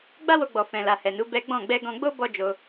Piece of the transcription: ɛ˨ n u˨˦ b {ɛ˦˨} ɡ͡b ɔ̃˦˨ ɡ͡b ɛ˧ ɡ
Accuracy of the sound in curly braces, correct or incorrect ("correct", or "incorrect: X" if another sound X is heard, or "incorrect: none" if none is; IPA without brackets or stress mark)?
incorrect: ɛ˦